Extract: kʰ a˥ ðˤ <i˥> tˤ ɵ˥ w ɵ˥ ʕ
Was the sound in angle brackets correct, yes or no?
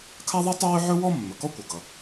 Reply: yes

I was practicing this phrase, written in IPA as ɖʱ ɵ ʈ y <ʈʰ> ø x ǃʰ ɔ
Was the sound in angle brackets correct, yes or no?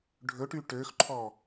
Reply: no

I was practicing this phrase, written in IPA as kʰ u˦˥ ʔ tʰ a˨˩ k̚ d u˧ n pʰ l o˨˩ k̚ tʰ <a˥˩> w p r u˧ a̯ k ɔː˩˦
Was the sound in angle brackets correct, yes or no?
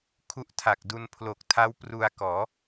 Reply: no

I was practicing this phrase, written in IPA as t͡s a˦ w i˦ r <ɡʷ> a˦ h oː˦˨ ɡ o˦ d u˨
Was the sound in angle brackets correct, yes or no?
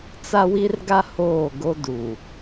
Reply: no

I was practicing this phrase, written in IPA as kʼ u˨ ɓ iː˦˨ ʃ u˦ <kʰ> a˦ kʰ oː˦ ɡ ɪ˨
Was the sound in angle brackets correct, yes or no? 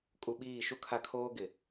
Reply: yes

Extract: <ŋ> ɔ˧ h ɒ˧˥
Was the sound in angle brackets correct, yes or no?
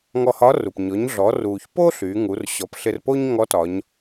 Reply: yes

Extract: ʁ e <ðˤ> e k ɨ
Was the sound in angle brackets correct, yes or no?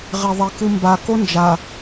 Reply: yes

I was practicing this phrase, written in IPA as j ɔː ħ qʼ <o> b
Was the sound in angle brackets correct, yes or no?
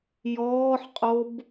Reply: yes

